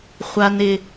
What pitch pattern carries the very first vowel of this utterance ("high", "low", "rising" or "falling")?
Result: low